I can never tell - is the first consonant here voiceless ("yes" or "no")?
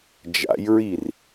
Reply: no